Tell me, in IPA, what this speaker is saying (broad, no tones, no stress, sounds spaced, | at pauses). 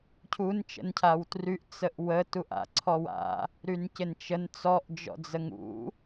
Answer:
cʰ u n t͡ʃ ə̰ n cʰ a w t r y ʔ t͡s ə ʔ w ə t u ʔ a̰ ǀʰ ɔ w a̰ | ɾ y n c ɪ n t͡ʃ ə n t͡s ɔ ʔ d͡ʒ ɔ̰ d͡z ə ŋ ṵ